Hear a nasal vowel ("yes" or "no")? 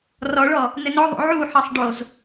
no